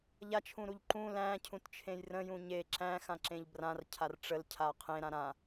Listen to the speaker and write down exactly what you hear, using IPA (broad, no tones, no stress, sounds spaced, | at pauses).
ʎ a t͡ʃʰ ũ ɾ u ʎ ǃ ũ l æ̃ cʰ ũ t t͡ʃʰ ẽ j r ə̃ j ũ ɲ e ǁ æ̃ x ã ǁ ẽ ʎ b r ã r cʰ a r ʈ͡ʂ ə l cʰ a qʰ ẽ ɾ ã ɾ ã